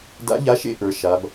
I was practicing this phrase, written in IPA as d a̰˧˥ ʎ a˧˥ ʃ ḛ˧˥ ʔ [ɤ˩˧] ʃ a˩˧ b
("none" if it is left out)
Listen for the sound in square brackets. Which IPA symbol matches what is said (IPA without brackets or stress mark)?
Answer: ə˞˩˧